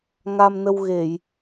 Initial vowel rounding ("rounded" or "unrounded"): unrounded